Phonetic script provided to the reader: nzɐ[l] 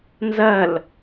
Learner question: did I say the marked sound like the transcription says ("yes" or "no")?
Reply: yes